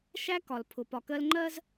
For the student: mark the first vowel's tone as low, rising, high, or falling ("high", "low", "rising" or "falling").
high